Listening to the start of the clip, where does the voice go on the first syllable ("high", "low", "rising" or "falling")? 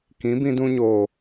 rising